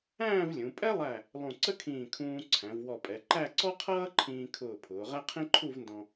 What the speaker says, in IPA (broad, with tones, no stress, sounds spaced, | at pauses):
æ̃ː˥˧ v lʲ ũ˩˧ pʼ ɛ˥ lˠ æ˧˩ | lˠ ũ˧˩ ǀ ə˥ kʰ ĩː˧˩ kʰ ũː˧ ǀʰ æ̃˩˧ v w ɔ˧˩ pʼ ɛ˩˧ ǃ æ˥˧ ǀ ɔ˥ qʰ ʌː˥ ǃʰ ĩː˧ kʰ ʊː˧˩ pʰ ʊː˩˧ ʁ æ˥ qʰ ĩ˥ ǃʰ u˥˧ v n d ɔ̃˧